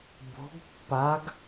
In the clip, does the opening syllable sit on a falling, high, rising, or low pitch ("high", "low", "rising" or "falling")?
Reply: rising